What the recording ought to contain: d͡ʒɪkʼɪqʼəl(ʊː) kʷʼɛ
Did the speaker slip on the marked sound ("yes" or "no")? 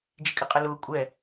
no